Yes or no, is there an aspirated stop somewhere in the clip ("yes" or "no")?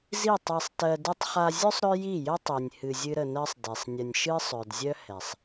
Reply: no